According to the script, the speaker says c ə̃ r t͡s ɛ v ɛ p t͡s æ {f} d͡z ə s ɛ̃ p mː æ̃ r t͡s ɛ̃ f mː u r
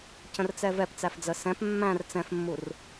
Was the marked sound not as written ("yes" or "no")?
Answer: no